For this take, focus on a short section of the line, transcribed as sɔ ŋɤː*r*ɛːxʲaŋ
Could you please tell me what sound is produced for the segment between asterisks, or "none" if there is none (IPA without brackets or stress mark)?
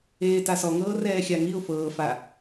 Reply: r